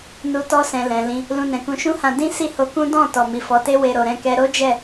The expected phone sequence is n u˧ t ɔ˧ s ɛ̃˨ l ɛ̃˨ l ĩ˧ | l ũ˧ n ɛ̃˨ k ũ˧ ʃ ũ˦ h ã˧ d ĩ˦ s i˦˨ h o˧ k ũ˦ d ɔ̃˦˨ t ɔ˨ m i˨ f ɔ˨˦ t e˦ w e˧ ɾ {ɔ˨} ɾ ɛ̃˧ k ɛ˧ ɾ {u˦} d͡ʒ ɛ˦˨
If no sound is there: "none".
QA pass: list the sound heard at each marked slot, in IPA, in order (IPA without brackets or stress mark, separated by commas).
o˨, o˦